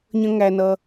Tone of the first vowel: high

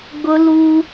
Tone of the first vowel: high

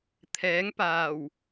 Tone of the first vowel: rising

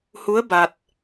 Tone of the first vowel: rising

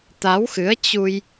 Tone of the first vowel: rising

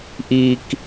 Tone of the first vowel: low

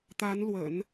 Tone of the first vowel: rising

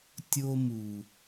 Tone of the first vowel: high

